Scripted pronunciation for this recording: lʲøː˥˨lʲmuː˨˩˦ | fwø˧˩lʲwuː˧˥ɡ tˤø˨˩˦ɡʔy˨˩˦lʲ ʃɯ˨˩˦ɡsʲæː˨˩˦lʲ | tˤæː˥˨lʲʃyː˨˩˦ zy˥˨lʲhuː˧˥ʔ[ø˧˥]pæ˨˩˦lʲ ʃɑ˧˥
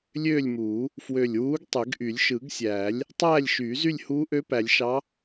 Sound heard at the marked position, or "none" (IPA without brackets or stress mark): ø˧˥